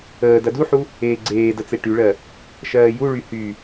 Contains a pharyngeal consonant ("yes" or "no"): yes